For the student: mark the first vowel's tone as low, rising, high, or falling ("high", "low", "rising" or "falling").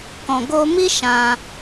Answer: low